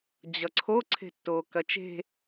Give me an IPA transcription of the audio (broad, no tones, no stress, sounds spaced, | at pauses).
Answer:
d͡ʑ ʌ ǀʰ o ǀʰ e̤ tː oː k ɐ t͡ʃ e̤